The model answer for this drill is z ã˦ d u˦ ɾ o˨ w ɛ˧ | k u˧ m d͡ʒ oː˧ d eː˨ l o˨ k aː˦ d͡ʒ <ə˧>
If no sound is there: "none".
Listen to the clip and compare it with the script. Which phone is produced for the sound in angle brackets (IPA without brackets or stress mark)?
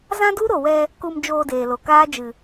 ɨ˧